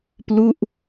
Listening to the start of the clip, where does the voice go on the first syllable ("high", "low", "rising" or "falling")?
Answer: falling